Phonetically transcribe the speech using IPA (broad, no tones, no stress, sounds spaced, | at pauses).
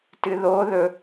t ɨ ð o ð ɵ